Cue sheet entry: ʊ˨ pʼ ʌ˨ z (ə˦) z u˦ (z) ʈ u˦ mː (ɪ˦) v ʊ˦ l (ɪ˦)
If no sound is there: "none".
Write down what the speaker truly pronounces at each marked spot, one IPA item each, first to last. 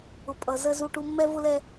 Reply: ə˦, none, ɛ˦, ɛ˦

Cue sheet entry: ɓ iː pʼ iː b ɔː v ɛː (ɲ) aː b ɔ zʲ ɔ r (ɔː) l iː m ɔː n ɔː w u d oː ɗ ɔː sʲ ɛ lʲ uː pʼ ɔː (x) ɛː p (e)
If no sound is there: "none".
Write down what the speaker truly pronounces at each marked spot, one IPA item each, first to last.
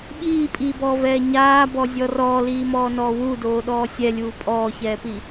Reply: ɲ, ɔː, ç, i

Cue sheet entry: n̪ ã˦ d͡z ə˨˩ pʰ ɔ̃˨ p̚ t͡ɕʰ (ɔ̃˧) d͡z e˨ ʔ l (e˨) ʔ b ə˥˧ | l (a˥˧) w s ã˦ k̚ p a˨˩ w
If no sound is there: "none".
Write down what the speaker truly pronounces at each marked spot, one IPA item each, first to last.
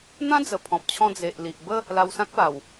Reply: ɔ̃˧, i˨, a˧

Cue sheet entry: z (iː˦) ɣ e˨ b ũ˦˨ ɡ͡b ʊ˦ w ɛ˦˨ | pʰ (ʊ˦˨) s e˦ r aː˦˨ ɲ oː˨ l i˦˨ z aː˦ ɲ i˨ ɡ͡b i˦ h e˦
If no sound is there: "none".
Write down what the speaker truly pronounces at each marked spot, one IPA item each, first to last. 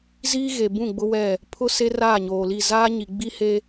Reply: iː˦, ʊ˦

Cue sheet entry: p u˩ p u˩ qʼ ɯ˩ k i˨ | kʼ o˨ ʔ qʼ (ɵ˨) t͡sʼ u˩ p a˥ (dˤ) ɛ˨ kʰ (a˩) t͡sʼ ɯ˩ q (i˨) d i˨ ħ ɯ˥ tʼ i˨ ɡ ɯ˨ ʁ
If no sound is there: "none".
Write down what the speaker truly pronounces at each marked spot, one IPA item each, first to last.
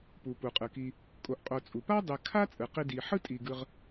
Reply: o˨, dˤ, a˥, i˨

